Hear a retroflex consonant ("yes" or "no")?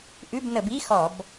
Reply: no